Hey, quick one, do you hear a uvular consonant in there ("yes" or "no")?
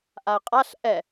yes